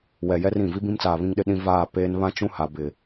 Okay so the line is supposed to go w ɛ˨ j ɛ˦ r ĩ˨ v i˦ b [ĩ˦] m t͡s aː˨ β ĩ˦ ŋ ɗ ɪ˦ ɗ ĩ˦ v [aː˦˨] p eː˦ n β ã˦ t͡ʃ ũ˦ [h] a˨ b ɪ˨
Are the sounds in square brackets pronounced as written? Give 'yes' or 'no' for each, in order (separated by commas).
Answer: yes, yes, yes